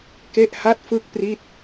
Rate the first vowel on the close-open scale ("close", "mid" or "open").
mid